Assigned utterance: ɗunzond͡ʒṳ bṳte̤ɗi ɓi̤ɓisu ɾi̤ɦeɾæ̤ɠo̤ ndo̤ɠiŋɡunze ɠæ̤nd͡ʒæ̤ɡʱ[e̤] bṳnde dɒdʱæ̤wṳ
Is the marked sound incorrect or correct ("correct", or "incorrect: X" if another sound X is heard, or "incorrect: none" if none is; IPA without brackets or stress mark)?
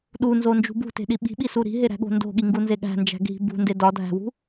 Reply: incorrect: i̤